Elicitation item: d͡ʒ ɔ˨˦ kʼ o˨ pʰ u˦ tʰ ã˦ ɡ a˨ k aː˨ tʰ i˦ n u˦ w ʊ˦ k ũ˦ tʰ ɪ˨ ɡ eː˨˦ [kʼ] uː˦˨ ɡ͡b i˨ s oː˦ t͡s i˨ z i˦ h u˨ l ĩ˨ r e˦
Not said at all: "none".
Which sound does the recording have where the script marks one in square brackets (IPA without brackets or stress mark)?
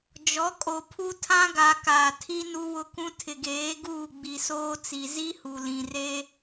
ɡ